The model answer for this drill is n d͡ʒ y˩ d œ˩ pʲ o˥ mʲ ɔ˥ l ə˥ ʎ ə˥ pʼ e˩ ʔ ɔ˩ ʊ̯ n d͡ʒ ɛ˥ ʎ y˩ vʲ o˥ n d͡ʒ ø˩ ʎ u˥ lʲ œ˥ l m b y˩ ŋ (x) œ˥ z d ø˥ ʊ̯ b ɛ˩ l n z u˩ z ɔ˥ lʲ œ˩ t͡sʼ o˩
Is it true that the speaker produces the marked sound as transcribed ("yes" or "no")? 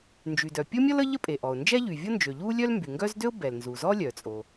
no